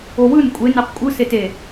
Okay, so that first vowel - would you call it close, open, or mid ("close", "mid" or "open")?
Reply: mid